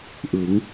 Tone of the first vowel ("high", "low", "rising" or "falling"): rising